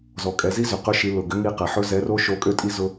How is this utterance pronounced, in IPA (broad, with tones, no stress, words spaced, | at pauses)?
zɔ˩kʼɛ˩˧zi˥zʏ˩ qɵ˧˥ʃi˩˧ lʊ˩ɡʏ˧˥ŋi˧qɛ˩ ħɵ˥zɛ˧˥ro˥ ʃo˧˥kʼø˥tʼi˥ zʊ˥